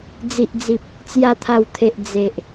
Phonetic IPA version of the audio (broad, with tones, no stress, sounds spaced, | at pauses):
d͡z i˨ ʔ d͡z i˨ p̚ | t͡s j a˨˩ t̪ʰ a˨˩ w t̪ʰ e˨ ʔ d͡z e˨ ʔ